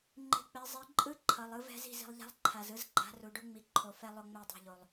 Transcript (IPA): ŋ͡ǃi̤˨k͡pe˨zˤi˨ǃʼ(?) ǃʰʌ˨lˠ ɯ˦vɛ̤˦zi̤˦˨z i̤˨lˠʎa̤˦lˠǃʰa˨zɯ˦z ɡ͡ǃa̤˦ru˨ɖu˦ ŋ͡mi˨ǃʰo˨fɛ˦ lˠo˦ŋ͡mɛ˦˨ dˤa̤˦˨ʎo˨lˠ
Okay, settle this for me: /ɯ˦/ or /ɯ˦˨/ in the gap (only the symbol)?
ɯ˦